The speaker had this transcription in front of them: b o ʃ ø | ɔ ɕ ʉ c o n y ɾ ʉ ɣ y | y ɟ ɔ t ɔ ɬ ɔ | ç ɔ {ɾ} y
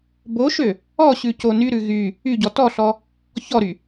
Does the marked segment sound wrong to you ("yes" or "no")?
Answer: no